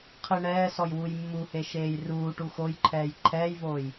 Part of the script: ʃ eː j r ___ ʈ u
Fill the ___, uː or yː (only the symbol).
uː